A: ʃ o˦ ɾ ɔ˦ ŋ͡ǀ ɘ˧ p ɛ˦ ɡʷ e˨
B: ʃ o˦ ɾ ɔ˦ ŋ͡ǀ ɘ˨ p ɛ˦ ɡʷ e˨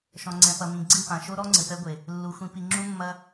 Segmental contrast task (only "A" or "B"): B